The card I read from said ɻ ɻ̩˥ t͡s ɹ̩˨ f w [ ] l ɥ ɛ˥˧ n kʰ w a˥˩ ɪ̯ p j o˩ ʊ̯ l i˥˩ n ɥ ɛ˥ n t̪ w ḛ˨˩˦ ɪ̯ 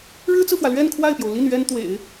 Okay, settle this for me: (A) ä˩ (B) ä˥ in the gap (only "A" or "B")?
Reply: A